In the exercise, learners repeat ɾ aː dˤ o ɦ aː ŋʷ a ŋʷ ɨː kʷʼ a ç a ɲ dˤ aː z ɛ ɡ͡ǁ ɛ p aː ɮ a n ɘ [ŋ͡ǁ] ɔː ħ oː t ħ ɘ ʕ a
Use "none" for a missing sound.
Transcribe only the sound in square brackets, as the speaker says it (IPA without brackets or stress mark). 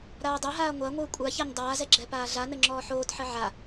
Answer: ŋ͡ǁ